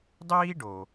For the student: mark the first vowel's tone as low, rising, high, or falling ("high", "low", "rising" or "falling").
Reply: high